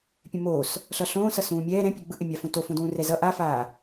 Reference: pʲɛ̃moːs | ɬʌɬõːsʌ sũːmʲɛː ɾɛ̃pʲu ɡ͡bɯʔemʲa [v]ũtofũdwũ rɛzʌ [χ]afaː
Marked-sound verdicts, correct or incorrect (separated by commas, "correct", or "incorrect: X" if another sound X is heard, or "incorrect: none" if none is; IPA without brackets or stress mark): incorrect: f, incorrect: ʔ